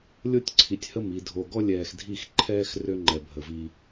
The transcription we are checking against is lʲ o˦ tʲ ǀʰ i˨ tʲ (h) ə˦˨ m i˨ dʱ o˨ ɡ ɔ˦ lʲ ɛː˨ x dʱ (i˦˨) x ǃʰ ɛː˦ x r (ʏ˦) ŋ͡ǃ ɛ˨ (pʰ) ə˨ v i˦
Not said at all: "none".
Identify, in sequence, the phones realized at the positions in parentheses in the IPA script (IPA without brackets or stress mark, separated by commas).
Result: h, i˦˨, ʏ˦, bʱ